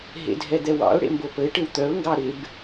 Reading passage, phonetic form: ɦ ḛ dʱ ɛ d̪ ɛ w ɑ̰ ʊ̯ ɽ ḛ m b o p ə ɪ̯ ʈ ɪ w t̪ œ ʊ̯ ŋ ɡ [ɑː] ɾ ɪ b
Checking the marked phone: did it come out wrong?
yes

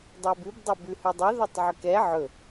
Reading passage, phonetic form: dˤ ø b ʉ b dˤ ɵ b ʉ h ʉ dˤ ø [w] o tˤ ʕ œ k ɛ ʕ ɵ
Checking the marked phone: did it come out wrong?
yes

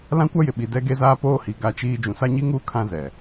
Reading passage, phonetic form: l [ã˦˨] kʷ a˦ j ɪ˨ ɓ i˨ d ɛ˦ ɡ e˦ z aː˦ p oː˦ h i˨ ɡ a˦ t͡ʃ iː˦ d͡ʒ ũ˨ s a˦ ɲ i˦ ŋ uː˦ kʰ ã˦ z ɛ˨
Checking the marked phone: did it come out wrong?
yes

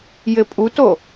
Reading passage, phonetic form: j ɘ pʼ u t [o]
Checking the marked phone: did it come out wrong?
no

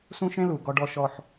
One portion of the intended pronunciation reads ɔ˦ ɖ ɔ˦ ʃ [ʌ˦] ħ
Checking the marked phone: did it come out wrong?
yes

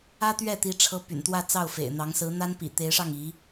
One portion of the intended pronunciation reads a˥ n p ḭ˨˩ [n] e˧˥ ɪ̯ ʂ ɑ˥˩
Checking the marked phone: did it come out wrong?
yes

